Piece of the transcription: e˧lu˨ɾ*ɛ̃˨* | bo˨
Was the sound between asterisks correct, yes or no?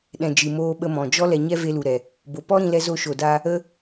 no